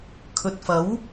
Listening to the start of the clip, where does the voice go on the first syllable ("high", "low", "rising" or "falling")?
low